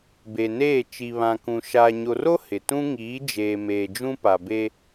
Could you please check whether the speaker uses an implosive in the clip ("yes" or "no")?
no